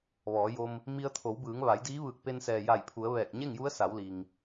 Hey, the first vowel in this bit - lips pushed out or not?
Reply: yes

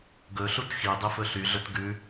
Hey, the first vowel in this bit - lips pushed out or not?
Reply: yes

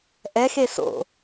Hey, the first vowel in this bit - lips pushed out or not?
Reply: no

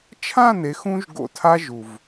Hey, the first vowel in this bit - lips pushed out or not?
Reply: no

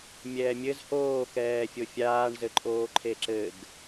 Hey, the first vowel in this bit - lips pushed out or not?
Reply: no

